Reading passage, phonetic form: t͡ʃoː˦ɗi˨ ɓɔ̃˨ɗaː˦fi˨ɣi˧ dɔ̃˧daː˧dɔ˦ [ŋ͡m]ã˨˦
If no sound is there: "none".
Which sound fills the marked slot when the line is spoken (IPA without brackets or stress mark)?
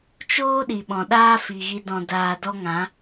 ŋ